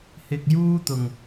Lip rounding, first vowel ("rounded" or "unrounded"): unrounded